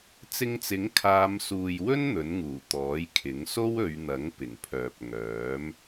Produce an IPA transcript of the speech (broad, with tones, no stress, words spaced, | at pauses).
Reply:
t͡sɪ˧ŋt͡sɪ˨˥ŋ kʰaː˨˧msuː˨jwɵ˥n n̪ɵ˨˥nŋuː˨˩ t̪ɔː˨˥jkʰɪ˨˥ŋ so˥wɵ˨˧ɥn̪ɐ˨˥ŋ pɪ˨˩ŋpʰœː˨p̚ŋœː˨˥m